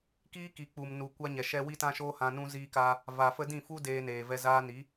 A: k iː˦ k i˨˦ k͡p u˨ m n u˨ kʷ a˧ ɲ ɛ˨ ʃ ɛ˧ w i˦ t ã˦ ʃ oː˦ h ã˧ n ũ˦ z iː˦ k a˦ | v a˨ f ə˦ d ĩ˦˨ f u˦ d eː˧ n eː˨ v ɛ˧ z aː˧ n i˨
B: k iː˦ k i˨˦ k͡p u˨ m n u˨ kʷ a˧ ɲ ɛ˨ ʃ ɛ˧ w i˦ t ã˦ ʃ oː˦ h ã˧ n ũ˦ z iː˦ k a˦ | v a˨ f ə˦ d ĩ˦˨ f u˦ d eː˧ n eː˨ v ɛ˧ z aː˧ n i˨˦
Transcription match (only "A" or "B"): B